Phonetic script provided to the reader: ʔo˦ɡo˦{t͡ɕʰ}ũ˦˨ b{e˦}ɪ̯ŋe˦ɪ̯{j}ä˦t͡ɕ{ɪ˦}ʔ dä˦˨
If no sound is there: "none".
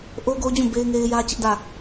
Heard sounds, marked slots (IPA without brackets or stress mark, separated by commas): d͡ʑ, e˦, j, ɪ˦